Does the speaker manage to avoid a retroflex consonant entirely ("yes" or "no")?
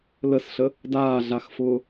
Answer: yes